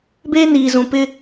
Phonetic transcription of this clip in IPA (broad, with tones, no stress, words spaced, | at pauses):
beː˦ niː˨zũ˨pɪ˦